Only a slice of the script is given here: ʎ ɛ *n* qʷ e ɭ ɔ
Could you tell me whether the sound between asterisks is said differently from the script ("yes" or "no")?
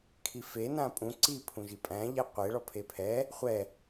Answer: yes